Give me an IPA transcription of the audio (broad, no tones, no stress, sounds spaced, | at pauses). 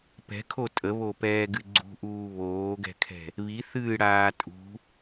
p ɛ̤ kʰ o tʼ ə β o p ɛː ɡ ɨ ɡ͡ǀ ṳ ʔ uː β oː ɡ ɛ̤ kʰ ɛ̤ | β i θ ɨː ɽ aː tʼ ṳ